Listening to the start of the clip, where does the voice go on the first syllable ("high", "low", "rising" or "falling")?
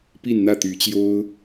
falling